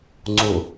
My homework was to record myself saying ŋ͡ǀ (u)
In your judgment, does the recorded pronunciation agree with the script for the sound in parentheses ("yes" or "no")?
yes